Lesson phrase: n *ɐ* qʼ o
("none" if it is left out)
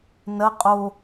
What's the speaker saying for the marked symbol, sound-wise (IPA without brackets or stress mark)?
ɐ